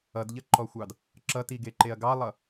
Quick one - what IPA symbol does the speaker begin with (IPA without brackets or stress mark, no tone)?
ʌ